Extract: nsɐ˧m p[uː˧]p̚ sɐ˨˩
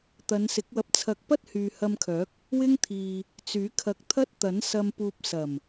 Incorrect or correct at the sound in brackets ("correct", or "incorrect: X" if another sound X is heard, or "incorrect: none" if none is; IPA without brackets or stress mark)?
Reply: correct